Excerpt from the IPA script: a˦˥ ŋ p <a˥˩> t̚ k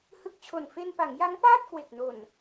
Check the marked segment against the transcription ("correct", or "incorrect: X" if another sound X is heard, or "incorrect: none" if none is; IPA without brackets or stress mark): incorrect: aː˥˩